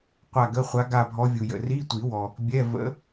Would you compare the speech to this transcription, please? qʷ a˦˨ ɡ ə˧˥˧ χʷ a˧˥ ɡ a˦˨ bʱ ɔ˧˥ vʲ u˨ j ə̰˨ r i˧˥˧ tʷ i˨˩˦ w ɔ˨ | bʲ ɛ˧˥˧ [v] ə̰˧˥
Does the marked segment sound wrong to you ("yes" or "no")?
no